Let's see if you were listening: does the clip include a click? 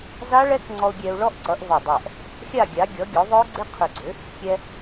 yes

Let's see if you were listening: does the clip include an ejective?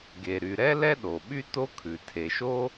no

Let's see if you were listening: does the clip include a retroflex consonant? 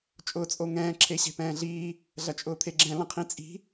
no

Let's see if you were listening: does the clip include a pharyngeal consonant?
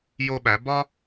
no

